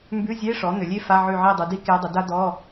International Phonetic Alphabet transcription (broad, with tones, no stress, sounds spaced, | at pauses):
m b ʉ˧˥˧ zʲ e˧˥˧ ʂ ɔ˩˥ n̪ ʏ˩˧ lʲ e˥ f a˧˥˧ ʕ ʉ˦˨ ʕ i˦˨ dˤ ʉ˩˧ d i˥ k e˧˥ dˤ ʏ˩˥ d a˥ d̪ ɔ˧˥˧